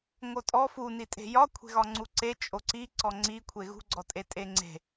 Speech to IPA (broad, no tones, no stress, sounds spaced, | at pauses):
ŋ o tʼ ɔ f u n i tʼ e̤ j ɒ kʷʰ e̤ ɣ ɒ ŋ͡ǀ u ǀ e t͡ʃʼ o ǀ i ǀ ɔ ŋ͡ǀ i kʷʰ e ɣ ṳ ɡ͡ǀ ɔ tʼ e tʼ e ŋ͡ǀ e̤